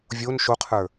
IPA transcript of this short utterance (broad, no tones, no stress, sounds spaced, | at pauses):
vʲ o n ʃ o qʰ ə˞